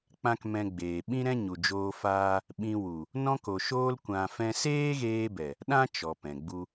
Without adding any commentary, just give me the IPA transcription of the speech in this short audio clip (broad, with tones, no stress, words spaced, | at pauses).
k͡pã˦kmɛ̃˧ɡ͡beː˨ ɓĩ˦ɾɛ̃˦ ɲu˨d͡ʒoː˧faː˧ | ɓĩ˧wu˨ | nɔ̃˧ko˨ʃoː˧l kʷã˧fɛ̃˦ seː˦ɣeː˧bɛ˨ | ɗã˦ t͡ʃɔ˨pɛ̃˨ɡ͡bu˧